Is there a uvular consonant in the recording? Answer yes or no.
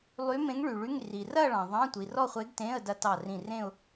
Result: yes